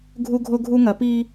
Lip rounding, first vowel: rounded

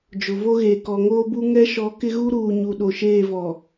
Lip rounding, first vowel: rounded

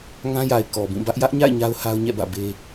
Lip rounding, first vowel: unrounded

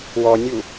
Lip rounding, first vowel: rounded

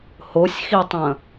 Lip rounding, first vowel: rounded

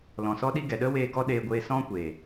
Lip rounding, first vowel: rounded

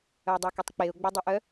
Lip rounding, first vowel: rounded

